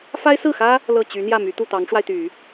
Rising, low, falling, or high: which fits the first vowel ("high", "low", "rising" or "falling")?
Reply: high